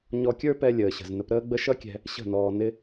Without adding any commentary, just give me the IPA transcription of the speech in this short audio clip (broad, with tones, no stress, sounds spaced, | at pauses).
ɲ ɔ˧ kʲ ə˞˦ p ɛ˦ lʲ əː˨ ɕ ə̤˨ z n ə˧ p ɾ əː˦ ɡ͡b ə˦ ʃ ʌ˦ kʲ ɛ̤˧ | ɕ ə̤˦˨ n ɔː˧ n ɪ˦